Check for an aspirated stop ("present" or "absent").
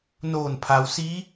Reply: present